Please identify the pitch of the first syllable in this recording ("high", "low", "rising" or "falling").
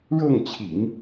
falling